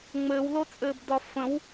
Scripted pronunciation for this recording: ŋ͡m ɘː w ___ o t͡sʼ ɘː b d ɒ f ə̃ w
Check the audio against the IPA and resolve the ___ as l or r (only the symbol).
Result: l